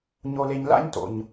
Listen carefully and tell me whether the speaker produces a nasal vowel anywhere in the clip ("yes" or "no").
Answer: no